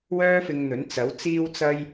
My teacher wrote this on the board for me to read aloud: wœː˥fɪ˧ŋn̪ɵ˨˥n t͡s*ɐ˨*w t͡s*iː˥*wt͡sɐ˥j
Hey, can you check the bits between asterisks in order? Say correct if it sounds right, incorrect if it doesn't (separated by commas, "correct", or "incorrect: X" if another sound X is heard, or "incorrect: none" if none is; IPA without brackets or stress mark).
incorrect: ɐ˨˥, correct